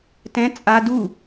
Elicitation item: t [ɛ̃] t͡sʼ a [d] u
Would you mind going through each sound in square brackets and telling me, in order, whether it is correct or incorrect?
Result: correct, correct

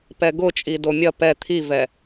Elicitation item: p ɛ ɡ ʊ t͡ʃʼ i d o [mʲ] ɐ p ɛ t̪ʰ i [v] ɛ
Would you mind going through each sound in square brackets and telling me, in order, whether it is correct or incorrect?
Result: correct, correct

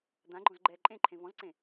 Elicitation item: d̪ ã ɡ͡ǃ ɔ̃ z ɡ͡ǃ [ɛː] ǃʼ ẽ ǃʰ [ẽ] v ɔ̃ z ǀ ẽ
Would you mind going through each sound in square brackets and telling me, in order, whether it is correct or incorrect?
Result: correct, correct

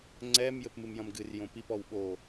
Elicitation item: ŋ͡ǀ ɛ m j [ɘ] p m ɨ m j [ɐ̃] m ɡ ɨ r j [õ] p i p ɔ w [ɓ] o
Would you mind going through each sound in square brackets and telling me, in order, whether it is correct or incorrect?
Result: correct, correct, correct, correct

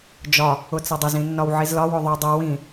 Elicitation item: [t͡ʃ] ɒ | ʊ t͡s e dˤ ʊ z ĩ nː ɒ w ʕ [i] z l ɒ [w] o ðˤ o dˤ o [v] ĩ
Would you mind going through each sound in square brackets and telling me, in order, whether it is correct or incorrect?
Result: incorrect, correct, correct, incorrect

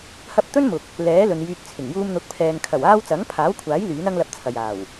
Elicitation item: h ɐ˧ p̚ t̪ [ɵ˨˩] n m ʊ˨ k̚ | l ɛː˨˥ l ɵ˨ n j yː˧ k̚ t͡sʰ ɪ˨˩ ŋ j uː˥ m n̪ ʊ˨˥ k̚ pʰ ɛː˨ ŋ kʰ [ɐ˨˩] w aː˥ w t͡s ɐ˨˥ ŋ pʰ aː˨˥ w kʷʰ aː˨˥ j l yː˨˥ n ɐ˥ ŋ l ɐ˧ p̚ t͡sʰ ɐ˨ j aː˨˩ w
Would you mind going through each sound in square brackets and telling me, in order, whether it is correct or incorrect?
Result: incorrect, correct

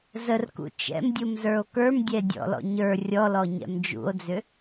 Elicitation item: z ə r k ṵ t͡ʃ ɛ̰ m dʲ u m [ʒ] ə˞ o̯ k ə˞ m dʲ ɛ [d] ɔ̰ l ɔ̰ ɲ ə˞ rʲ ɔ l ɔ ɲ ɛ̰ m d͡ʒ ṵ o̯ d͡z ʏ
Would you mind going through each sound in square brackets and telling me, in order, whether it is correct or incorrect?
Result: incorrect, incorrect

